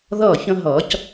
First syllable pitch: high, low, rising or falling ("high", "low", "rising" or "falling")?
falling